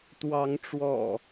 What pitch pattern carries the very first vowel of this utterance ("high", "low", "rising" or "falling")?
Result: rising